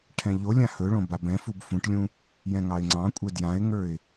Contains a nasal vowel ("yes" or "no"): yes